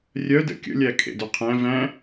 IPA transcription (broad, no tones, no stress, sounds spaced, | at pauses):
rʲ œ d ə̰ kʲ ə̰ lʲ æ kʰ ḛ d œ qʰ æ̃ v æ̃